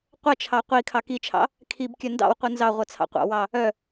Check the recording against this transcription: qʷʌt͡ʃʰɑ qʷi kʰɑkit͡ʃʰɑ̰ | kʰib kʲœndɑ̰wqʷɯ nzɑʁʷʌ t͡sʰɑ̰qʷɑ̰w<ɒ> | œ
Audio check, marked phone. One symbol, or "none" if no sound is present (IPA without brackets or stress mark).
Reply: ɑ